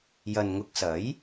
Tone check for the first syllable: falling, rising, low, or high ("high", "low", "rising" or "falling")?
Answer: low